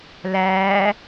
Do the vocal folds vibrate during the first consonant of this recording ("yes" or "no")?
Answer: yes